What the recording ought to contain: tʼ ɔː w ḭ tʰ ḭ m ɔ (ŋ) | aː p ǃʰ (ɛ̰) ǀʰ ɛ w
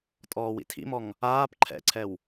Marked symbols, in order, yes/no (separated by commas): yes, yes